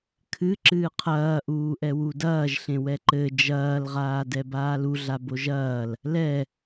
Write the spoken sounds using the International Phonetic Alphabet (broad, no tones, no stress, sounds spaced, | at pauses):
kʰ ɨ ǁ ɨː qʰ ɐː ʔ uː ʔ ɛ w u d ɐː ʒ ɬ ẽ w ɛ ǃ ɘ d͡ʒ ɐː l ʁ aː d ɛ b aː l u ɮ a b o ʒ ɐː l | l ɛ